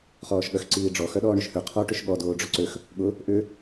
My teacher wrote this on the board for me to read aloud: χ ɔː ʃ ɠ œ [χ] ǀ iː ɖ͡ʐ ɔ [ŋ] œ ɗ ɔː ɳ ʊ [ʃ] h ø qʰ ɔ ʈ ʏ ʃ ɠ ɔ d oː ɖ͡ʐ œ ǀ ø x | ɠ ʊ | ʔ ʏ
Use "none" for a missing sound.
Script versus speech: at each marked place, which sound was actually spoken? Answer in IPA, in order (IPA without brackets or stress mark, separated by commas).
x, x, ʃ